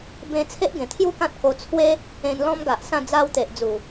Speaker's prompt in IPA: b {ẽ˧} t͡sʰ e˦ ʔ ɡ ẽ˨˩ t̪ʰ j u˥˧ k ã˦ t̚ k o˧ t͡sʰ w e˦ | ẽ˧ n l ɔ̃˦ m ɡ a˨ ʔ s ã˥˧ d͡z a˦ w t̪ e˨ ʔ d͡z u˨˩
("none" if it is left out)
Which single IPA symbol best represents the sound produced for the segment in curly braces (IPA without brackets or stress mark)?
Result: ẽ˧